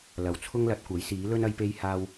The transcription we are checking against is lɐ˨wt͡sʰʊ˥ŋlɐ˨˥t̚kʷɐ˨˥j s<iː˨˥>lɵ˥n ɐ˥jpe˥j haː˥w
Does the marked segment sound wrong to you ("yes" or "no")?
no